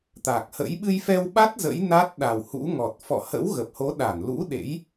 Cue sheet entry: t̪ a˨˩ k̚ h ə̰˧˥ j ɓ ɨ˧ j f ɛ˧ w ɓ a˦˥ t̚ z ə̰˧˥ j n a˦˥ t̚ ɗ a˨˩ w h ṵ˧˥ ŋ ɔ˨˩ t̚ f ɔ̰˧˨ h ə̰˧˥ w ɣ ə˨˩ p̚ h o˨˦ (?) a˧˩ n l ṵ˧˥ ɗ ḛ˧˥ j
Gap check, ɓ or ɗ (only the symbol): ɗ